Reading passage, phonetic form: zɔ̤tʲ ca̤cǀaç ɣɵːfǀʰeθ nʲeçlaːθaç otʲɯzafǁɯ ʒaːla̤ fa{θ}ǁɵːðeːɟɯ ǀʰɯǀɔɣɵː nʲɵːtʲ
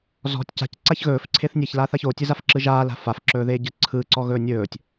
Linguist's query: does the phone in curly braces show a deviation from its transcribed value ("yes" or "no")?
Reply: yes